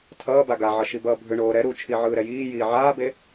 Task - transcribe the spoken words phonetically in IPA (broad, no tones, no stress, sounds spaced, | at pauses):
tʰ ʌː b a ɡ a ʕ ʌ ʃ i b ʌː bʱ ɯ ɳ oː ɾ ɛ ɾ u t͡ʃʰ i ʕ ɯː ɾ ɛ j iː j iː ʕ aː b e